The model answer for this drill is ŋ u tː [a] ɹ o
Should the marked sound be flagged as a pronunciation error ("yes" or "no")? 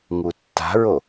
yes